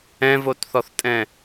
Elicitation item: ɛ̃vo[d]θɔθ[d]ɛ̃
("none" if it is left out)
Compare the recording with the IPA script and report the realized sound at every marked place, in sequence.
t, tʼ

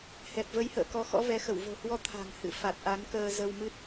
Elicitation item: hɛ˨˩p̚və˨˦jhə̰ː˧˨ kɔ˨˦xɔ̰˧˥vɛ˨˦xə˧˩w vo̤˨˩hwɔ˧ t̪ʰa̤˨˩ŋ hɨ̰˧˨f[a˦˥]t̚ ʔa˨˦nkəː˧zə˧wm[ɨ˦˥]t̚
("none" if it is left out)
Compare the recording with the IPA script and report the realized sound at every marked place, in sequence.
a˨˩, ɨ˦˥

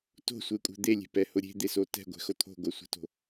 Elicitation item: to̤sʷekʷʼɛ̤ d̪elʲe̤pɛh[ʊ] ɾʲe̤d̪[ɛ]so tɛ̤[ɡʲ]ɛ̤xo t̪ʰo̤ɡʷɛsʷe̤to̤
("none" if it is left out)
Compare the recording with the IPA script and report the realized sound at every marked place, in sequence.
ʊ, e, ɡʷ

